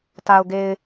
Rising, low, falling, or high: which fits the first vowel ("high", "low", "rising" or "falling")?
low